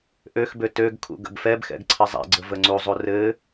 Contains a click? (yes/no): yes